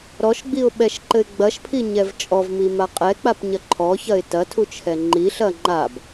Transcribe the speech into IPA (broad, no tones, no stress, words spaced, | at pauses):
ɾɔʃɡ͡biʊ̯ɓɛʃǃɘɪ̯ ɡ͡bɐʃpʰiɲɛv t͡ʃʼɔvmima qʼɛk͡papɲɐ ǃʰɔçɐɪ̯ tɐtʰut͡ʃʰɛ ŋ͡ǃiɬɐ ŋ͡ǃab